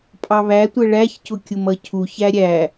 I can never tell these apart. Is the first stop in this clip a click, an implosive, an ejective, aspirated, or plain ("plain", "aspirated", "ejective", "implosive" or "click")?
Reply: ejective